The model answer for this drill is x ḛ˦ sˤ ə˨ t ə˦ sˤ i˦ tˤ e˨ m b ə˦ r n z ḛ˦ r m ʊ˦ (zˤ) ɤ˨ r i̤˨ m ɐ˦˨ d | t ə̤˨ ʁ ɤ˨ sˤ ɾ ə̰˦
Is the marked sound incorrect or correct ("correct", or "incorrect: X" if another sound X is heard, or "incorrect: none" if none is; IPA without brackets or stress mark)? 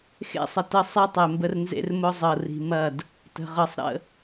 correct